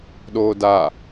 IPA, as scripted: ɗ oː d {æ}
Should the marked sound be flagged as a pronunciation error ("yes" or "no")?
yes